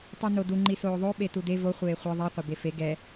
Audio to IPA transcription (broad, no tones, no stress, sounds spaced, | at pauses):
tˤ u n o d u ŋ͡ǃ i s oː ðˤ o ɓ e t u d e v o χʷ eː χʷ ɐ ðˤ i qʷ ɐ b e f e ɡ ɛ